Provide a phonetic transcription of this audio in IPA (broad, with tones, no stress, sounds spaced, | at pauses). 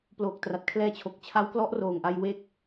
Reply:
p l oː˨˩ k̚ t r a˨˩ t̚ kʰ l ɛː˦˥ t͡ɕʰ o˨˩ k̚ t͡ɕʰ a˦˥ w k l ɔ˦˥ ʔ r oː˨˩ ŋ ʔ a˧ j w eː˦˥ k̚